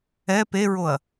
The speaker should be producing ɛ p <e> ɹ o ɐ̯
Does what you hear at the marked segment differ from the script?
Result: no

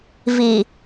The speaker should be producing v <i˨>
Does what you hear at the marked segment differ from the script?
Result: no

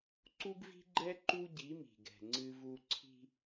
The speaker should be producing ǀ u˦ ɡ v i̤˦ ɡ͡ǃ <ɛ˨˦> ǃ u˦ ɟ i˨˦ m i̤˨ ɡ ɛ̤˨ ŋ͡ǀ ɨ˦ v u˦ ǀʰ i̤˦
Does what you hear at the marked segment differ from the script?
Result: yes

